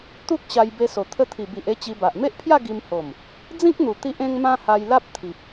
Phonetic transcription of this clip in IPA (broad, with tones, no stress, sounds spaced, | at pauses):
t̪ u˦ k̚ ɕ a˧ j b e˧ s o˨˩ t̪ʰ ə˧ t̪ʰ i˨˩ b i˨ ʔ e˧ t͡ɕ i˧ b a˨ ʔ m e˦ ʔ pʰ j a˥˧ ɡ i˧ m h o˨˩ m | d͡z ĩ˦ k̚ n̪ u˨˩ t̪ i˦ ʔ ẽ˦ ŋ m ã˦ h a˧ j l a˦ p̚ t̪ʰ i˨ p̚